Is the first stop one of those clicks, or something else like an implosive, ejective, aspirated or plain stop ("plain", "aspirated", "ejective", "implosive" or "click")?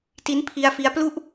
plain